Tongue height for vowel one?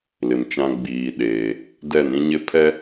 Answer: high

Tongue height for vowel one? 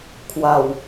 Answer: low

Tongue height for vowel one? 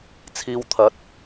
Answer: high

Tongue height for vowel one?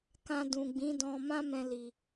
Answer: low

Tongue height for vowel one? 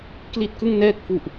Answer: high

